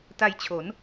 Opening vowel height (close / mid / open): open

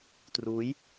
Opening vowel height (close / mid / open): close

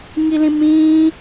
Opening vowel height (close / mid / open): close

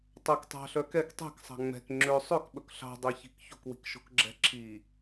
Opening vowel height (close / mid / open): open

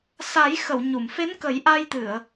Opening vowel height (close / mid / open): open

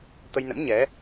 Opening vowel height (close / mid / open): mid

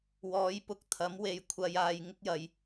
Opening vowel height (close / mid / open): mid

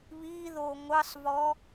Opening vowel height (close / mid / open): close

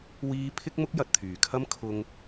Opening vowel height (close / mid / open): close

